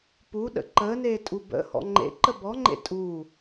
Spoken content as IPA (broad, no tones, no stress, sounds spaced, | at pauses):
p u ɗ ə̰ ǃ əː n eː tʼ u b ə̰ h ɔ̰ ŋ͡ǃ ḛ ǃ ə b ɔ ŋ͡ǃ ḛ tʼ u